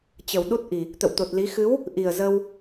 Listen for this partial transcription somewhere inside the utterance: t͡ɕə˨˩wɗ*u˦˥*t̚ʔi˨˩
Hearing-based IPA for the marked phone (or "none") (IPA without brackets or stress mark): u˦˥